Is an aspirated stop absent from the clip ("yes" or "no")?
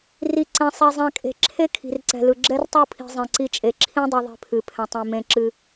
no